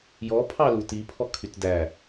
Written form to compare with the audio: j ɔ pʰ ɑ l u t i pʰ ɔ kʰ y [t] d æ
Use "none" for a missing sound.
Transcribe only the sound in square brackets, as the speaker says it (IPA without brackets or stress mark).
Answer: t